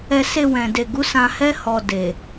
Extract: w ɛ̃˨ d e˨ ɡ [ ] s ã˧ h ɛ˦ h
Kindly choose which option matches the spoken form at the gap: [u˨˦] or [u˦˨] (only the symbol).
u˨˦